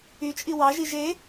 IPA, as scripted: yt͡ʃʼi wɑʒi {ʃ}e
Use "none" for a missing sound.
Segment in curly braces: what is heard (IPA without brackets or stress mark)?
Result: ʒ